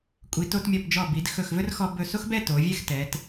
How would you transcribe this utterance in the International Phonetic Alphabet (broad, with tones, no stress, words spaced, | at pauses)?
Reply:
kʷʼi˩˧to˧tmʲɔ˧˩pd͡ʒɔ˧˩ bi˩˧d xɵ˧˩xvɵ˥r xɔ˧bɵ˧˩so˥xbɛ˥˧ to˩˧vʲɛ˥˧xtɛ˩˧t